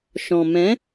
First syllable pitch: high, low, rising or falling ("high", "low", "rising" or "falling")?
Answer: low